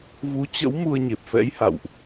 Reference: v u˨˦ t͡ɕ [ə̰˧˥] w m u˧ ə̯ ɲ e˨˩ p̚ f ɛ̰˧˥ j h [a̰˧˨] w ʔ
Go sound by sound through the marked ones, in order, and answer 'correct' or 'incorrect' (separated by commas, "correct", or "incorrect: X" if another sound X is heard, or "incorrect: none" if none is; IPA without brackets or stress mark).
correct, correct